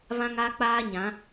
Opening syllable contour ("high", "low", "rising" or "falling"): high